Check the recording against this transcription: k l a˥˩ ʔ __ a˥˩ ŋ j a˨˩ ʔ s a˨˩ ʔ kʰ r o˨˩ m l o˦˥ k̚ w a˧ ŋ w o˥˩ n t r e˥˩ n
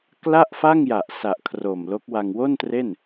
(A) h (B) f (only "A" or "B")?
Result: B